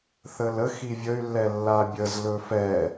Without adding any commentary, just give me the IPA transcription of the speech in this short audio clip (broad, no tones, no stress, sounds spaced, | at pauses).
θ ə l ə x i vʲ ə y̯ lː ɛ lː a bʲ ə z l ɵ f ɛ